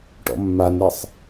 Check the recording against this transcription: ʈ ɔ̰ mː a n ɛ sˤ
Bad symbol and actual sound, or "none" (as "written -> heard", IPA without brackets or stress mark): none